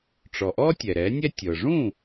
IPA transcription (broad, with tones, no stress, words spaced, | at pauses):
ʈ͡ʂɔ˩ʔɔ˥ tʲɛ˩ɾɛ˩˥nʲɛ˥ tʲɤ˩ʐũ˥˩